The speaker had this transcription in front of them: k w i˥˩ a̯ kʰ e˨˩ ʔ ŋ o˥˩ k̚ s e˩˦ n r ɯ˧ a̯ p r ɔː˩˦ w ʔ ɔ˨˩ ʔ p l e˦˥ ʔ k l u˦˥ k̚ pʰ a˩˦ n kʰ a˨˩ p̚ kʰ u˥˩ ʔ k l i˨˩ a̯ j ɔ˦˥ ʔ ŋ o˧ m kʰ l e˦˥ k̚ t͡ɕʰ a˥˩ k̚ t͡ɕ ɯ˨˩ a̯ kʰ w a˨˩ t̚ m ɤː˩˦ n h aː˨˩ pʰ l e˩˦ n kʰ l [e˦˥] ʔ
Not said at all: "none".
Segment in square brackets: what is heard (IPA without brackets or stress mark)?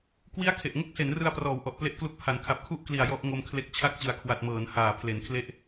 e˦˥